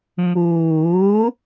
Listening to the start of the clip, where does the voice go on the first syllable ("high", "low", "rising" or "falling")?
rising